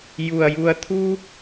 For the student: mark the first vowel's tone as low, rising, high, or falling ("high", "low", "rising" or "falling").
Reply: low